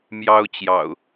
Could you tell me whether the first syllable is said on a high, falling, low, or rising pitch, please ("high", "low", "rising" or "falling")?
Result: high